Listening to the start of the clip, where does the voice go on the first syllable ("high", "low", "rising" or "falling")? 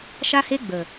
high